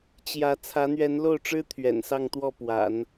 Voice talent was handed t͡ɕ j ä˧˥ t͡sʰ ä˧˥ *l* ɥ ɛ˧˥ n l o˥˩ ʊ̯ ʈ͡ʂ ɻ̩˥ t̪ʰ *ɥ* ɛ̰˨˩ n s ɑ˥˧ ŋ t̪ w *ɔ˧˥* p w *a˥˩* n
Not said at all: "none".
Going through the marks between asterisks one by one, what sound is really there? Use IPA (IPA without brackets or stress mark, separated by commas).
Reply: n̪, ɥ, ɔ˥˩, a̰˨˩˦